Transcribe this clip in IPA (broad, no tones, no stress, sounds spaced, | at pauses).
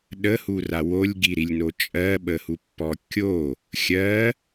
ɗ ə h u r a w o lʲ ɡ i ɾ i lʲ n o t͡ʃʼ ɜ ɓ ə h u pː ɔ kʲ o | xʲ ɜ